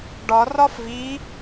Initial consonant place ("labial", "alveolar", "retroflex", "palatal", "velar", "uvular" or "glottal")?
retroflex